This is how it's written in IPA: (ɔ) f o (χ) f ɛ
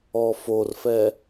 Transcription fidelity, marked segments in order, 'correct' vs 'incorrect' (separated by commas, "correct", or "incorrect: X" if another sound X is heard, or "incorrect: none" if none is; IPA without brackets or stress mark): correct, incorrect: r